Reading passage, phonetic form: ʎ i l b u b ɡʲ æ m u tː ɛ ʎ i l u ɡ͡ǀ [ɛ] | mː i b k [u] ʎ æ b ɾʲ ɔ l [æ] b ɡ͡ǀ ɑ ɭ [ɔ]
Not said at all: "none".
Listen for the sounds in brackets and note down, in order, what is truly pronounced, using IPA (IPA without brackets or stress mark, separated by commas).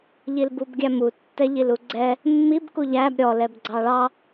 ɛ, u, ɛ, ɑ